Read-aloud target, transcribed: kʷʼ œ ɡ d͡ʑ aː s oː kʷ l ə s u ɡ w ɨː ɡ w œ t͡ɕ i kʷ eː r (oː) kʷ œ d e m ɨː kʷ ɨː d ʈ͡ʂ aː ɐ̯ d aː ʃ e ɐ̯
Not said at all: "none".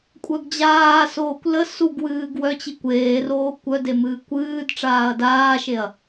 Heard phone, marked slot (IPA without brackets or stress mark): oː